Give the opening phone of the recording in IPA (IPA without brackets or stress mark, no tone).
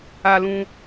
a